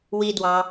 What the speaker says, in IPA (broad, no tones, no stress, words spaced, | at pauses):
widwɑ